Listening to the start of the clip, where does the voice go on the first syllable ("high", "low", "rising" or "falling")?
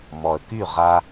low